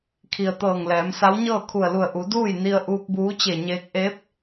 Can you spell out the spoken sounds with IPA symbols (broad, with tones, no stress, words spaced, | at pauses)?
kʰi˩ə̯ t̪ɤː˧˩ŋlɛː˩˧msa˧˥w ɲɤː˥˨kʰu˧˩ə̯lu˧˩ə̯ ʔu˩˧duː˥˨jni˧ə̯ ʔuː˧k̚buː˧˥t͡ɕe˧˩ɲeː˧k̚ ʔe˧˥p̚